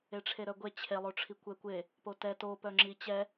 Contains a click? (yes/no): yes